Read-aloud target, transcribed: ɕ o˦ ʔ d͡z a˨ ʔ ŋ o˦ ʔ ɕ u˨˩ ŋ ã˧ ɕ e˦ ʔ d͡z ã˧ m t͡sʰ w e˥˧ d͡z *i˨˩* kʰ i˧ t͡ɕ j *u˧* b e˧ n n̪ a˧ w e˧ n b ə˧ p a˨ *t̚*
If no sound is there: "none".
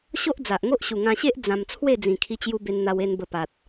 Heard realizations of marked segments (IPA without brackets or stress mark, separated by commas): ĩ˨˩, u˧, t̚